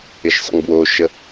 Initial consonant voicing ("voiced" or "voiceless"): voiceless